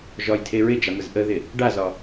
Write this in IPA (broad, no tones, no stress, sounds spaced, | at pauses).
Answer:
ʒ ɒ j tʰ e ɹ ɪ d͡ʒ a m ə z ʔ ə ð ɪ | ɖ a z ɒ